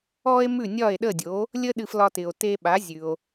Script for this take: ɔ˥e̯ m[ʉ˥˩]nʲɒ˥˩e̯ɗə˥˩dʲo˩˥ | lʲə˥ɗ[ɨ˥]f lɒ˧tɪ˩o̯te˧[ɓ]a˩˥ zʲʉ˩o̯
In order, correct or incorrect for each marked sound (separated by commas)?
correct, incorrect, correct